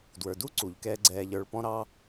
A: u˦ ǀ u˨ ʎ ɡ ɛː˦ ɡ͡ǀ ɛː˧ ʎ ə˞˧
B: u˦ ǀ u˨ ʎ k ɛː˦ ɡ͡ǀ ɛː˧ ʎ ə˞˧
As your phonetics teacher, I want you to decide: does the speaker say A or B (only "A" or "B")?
B